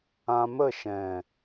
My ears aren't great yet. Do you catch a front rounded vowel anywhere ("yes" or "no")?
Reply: no